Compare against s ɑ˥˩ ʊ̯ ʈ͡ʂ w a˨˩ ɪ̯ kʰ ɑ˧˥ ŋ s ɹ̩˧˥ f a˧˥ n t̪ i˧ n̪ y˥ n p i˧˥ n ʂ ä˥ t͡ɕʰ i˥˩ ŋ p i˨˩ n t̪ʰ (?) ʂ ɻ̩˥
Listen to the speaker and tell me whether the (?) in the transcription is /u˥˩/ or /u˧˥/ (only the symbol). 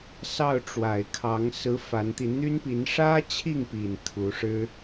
u˧˥